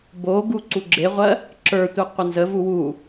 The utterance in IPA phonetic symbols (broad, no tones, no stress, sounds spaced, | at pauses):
b o ɡ u ǀ u ɡ͡ǁ e ʁʷ ɜ | ǁ ə˞ tʷ e qʷ ə n z ə v u w u